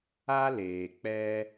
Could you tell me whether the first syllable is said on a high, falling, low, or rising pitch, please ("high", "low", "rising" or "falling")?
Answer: high